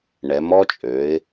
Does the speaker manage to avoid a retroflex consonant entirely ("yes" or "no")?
no